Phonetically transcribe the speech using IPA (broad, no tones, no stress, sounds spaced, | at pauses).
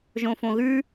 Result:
ʒ õ f õ ɣ ʉ